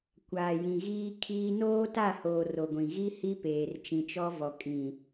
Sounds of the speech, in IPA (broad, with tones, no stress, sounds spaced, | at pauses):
kʷ aː˨ j ĩ˨ ɣ iː˦ kʰ iː˦ n oː˦ t a˦˨ h oː˨ r o˨ ɡʷ ĩ˨ ɣ i˦ h i˦ p eː˨ r t͡ʃ ĩ˨ t͡ʃ ɔ˦ v ɔ˨ kʼ ĩ˨